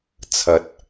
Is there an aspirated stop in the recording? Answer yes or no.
yes